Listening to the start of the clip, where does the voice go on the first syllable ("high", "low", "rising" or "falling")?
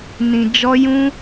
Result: low